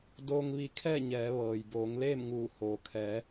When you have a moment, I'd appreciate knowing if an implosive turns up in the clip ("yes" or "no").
no